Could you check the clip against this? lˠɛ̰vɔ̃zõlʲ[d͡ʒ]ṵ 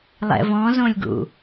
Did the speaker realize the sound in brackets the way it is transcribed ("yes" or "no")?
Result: no